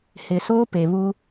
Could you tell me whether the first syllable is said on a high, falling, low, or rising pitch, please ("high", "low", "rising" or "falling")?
low